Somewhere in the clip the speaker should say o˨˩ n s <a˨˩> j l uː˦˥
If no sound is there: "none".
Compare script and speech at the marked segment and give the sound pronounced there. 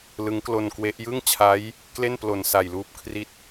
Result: a˨˩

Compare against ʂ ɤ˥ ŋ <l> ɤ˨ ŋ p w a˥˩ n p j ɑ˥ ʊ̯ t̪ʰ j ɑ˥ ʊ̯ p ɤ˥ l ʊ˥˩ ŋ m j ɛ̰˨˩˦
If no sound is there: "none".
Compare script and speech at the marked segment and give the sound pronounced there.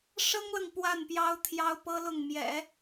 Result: l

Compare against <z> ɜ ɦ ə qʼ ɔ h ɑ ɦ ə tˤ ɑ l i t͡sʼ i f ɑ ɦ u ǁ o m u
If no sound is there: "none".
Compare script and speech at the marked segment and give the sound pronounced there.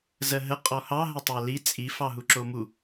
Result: z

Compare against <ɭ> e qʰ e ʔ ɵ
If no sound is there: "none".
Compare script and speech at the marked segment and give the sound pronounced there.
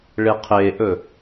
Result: ɭ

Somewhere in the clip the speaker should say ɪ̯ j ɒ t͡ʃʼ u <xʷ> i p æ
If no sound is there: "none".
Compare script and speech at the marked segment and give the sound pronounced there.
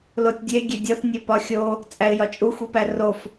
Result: xʷ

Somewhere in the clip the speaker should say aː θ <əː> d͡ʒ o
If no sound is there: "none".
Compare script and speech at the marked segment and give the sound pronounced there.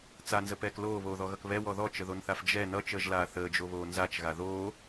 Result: əː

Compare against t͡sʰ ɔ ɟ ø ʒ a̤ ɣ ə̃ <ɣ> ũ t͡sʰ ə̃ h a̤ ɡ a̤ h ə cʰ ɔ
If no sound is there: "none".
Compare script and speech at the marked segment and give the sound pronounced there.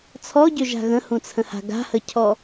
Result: h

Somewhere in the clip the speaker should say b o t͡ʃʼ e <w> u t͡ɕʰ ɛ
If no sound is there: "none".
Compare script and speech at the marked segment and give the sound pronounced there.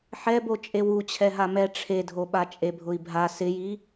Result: w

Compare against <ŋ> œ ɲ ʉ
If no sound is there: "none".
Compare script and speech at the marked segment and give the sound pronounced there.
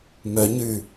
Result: m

